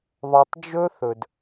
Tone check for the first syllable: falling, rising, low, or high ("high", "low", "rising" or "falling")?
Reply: low